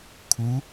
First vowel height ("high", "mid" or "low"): high